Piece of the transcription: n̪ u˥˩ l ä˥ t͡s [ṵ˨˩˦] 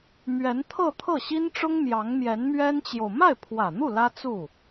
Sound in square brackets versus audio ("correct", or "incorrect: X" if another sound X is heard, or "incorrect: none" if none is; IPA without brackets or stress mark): incorrect: u˥˩